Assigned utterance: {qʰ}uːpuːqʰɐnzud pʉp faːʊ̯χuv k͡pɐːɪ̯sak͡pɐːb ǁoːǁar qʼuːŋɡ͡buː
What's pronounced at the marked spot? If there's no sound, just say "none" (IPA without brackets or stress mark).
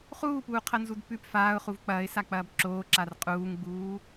χ